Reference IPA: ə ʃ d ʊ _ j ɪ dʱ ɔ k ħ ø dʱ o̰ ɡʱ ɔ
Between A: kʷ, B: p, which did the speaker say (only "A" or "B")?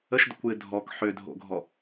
A